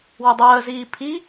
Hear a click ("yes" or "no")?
no